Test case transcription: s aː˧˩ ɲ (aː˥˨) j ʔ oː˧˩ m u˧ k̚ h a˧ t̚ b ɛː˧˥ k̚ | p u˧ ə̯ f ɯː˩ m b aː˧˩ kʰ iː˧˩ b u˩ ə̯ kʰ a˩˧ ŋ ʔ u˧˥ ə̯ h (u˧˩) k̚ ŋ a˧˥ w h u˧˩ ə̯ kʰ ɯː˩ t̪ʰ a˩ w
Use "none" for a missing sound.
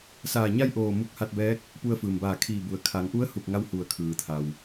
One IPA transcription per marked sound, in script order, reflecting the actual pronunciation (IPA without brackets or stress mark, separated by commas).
a˥˨, u˧˩